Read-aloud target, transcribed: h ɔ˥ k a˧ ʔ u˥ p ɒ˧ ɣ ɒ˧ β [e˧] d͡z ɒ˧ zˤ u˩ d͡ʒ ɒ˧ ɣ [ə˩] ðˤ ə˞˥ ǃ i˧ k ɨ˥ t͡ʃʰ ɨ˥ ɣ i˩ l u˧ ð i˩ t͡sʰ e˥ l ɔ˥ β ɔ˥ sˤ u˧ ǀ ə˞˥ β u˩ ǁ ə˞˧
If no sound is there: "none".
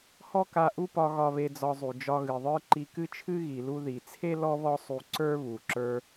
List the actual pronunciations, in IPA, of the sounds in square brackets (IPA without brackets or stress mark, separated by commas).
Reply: e˧, ɨ˩